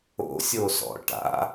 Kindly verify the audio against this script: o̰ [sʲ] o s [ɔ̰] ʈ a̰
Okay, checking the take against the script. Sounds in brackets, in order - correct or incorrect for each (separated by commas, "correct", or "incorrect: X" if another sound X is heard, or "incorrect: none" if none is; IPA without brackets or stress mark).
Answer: correct, correct